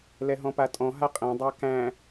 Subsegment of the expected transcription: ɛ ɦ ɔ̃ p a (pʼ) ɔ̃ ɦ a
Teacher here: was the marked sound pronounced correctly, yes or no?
no